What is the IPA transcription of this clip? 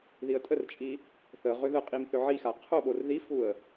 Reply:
ðiə̯tʼərt͡ʃʼi | θə ʁʏðəqʼim θʏʕixa qʰoɓor ðifuə̯

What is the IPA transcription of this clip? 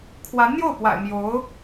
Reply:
kʰwa˧˥nn̪jo˥˩ʊ̯ pwa̰˨˩ɪ̯ mjo˧˥ʊ̯

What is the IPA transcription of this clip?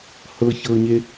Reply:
hɤçɤːɲe

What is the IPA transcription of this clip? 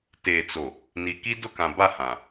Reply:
teː˨t͡so˨ | ni˨ki˦ dʊ˦kã˨ba˦˨ hã˨

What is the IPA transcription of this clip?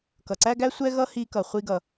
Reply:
kʌ˩ǀæ˥ɡæ˥ sʷɛ˥ɣʌ˥ hi˧kʌ˩ χʷi˥ɡʌ˩

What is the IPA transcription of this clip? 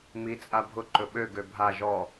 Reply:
mi t͡sʼabʱʊ ǃɵɓø ɡøbʱa ʒɔ

